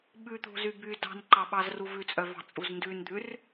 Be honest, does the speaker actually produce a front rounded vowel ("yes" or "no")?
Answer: yes